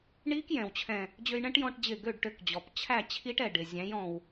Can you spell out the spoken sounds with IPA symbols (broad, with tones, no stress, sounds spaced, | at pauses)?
ɳ i˦˥ k j ɛ̃˩ w t͡ɕʰ ɛ̃˧˩ | d͡ʑ ø˧ j ɳ ɛ̃˦˥ ʈ j ɔ̃˧ ʈ d͡ʑ ɪ˧˩ ɡ ø˥˨ ɖ ʈ ø˧ k d͡ʑ ɔ˩ p t͡ɕʰ æ˥˨ t͡ɕʰ i˦˥ ʈ ɛ˧˩ ɖ ɪ˩ zʲ æ̃˨˥ j ɔ̃˩ w